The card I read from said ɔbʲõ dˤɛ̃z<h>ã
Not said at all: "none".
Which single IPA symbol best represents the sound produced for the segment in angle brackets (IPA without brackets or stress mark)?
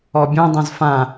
f